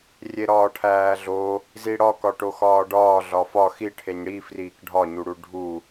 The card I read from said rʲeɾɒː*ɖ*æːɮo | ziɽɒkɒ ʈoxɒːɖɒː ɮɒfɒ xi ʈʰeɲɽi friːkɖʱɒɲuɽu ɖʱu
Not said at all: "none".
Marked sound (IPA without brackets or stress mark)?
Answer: ʈʰ